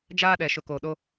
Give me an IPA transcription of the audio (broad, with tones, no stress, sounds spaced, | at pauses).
d͡ʒ aː˦ ɗ ɛ˨ ʃ ʊ˨ k oː˨ ɗ o˦